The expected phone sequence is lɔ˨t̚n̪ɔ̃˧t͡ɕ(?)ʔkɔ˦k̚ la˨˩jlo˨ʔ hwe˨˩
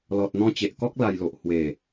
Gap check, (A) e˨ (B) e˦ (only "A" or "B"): A